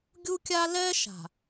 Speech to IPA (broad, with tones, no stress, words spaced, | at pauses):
ɡʲu˦kʲa˦ lɛ˦ ʃa̤˨